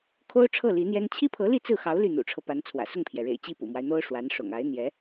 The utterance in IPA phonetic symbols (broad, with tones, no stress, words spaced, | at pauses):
kʰo˥ʊ̯ ʈ͡ʂʰɤ˥˩ li˧˥n̪jɛ˥n t͡ɕʰi˥pʰɤ˧˥li˥˧ t͡sɹ̩˥˩xɑ˧˥ʊ̯ ly˥˩ n̪ṵ˨˩ʈ͡ʂʰɤ˦ pa˧˥nt͡sʰwä̰˨˩ sʊ˥˩ŋpʰjɛ˩ɻḛ˨˩ɪ̯ t͡ɕi˥˩pṵ˨˩mwa˦ɪ̯n̪o˥ʊ̯ ʂwa˧˥nʂʊ̰˨˩ŋ a˧˥ɪ̯n̪jɛ˧˥